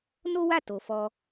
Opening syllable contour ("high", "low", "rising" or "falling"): high